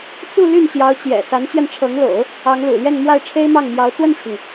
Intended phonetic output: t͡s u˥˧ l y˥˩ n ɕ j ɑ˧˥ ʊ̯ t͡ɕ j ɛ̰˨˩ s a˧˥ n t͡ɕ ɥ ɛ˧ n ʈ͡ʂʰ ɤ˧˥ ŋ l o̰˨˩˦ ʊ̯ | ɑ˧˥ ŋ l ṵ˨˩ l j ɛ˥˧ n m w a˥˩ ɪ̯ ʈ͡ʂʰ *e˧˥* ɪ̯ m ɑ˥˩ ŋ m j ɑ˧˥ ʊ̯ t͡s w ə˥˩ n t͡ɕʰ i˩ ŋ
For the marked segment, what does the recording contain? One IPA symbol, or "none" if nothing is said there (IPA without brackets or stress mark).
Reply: e˥